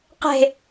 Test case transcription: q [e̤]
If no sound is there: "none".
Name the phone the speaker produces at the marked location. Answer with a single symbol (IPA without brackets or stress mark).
e̤